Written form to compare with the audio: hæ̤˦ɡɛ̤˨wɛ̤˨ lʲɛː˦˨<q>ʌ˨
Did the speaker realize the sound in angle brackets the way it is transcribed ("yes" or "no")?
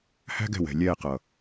yes